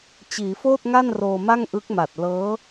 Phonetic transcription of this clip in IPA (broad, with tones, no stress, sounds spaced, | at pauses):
t͡ɕ iː˩˦ f oː˥˩ t̚ ŋ a˥˩ n r oː˧ m a˥˩ ŋ ʔ ɯ˦˥ k̚ m a˨˩ t̚ l ɤː˦˥